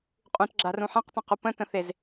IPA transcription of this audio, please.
qʼ ũ t ɡ͡ǁ a r ũ ħ ã q tˤ ə̃ q u p ə̃ t ə̃ θ e z

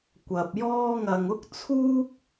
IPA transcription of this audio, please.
kʷ ɐ˧ p̚ j ɔː˥ ŋ ɐ˧ ŋ ʊ˥ k̚ t͡sʰ uː˥ k̚

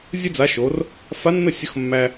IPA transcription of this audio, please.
zʲ ə˥ d͡z a˧˥ ʃ o˧˥ r | f a˧˥ nː ə˥˩ sʲ ʊ˧˥ x mː æ˥

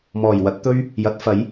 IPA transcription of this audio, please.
m ɔː˨˩ j w ɐ˨˥ t̚ t̪ ɵ˥ ɥ | j ɐ˨˥ t̚ f ɐ˨˥ j

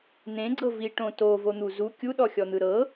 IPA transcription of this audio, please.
n̪ ẽ ɡ͡ǀ ɤ v i ʈ õ t o v o n̪ u z u kʲ u ɗ ɔ xʲ ɔ n̪ ɯ ɾ ɤ

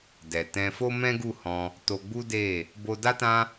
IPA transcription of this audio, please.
d ɛ˨ t ɛ̃˧ f o˦ m ɛ̃˦ ɡ u˦˨ h ɔ̃˧ | t o˧ ɡ͡b u˦ d e˦˨ | b o˧ d a˦ t ã˦

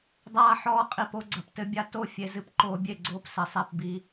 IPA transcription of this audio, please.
dˤ aː˧ ħ ɔː˧ qʼ i˨ p o˦ ɡ͡ǀ ɐ˨ p t ɘ˧ bʲ a˧ t o˦˨ fʲ e˧ z ɨ˧ p ǃ oː˧ bʲ e˦˨ ɡ͡ǀ oː˧ p s ɘ˨ sˤ ɛ˦˨ p b i˧

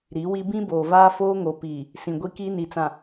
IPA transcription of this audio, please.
ɾ i˨˦ w i˦ b ĩ˦ b oː˨ v aː˦ f oː˦ ŋ o˨ p iː˨ | s ĩ˨ ɡʷ i˦ k iː˦ n i˨ t͡s ã˨

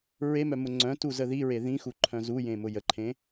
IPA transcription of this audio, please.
ɹ e m œ m ʊ ŋ͡ǀ œ̃ t u z ə ð i ɹ e ð ĩ x u ǃʰ œ̃ z u j ẽ m ʊ j ə ǃʰ ẽ

